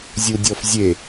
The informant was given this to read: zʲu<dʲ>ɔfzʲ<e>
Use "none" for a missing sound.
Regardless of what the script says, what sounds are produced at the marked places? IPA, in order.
dʲ, e

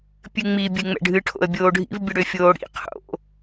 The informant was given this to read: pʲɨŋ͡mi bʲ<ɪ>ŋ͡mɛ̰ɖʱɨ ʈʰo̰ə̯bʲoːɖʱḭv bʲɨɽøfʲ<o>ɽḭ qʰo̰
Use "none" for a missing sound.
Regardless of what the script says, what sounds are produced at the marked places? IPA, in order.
ɨ, oː

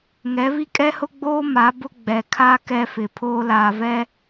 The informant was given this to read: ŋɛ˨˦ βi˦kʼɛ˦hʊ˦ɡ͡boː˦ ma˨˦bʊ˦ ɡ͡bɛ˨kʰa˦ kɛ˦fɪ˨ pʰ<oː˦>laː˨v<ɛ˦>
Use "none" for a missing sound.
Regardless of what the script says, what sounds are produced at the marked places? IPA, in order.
oː˦, ɛ˦

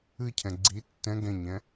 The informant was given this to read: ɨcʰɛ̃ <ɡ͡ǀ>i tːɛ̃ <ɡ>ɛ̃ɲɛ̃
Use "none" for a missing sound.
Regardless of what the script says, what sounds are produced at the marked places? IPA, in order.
ɡ͡ǀ, ɡ

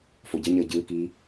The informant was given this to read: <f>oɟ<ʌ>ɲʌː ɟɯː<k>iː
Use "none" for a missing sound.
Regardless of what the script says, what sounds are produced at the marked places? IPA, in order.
f, ʌ, k

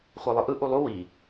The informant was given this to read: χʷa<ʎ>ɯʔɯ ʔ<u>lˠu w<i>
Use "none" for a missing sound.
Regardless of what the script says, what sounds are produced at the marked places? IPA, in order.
lˠ, u, i

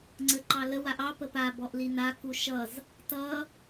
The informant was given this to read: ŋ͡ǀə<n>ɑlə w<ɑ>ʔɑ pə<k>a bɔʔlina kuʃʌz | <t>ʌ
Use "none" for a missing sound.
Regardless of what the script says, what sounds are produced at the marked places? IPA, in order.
ǃ, a, p, t

